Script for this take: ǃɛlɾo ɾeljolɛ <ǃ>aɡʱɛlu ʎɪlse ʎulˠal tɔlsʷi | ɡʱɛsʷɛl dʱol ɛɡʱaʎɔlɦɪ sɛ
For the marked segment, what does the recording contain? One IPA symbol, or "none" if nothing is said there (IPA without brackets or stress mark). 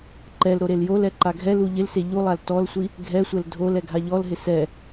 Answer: ǃ